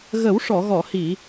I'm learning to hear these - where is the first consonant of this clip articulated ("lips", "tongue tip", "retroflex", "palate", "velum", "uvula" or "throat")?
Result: velum